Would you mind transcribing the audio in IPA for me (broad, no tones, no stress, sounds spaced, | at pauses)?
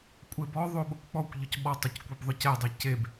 kʷʼ e b ɔ ðˤ o ɓ ʊ kʷ k͡p ɔ kʷ ʎ ʊ c ɓ ɔ tˤ ʊ c kʷ e b ðˤ ʊ c ɛ dˤ ɛ c e b